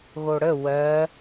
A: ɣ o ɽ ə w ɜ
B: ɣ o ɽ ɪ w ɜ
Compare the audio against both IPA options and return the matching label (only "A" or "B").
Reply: A